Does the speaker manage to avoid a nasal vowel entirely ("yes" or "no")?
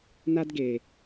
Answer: yes